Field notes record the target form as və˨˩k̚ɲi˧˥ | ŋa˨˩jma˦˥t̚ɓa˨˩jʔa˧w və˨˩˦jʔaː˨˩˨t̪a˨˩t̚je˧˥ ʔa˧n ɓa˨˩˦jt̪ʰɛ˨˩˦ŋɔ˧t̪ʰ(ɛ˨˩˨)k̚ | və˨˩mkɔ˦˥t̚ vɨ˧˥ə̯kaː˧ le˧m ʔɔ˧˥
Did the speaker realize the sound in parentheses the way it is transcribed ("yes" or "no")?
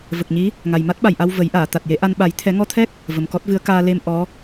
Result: no